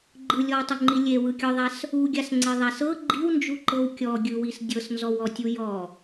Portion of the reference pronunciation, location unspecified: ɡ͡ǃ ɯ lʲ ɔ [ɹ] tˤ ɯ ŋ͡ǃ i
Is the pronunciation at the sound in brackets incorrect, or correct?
incorrect